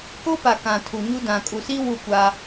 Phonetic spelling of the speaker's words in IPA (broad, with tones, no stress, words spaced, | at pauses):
ko˦pa˨ kã˨tʰu˨ɲu˦ dã˨kʼu˨si˦ wu˦˨kʷa˦